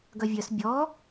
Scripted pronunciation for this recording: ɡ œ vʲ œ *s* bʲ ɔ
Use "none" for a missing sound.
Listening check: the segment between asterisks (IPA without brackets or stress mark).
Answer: s